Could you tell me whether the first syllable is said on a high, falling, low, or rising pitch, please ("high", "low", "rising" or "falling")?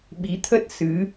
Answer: rising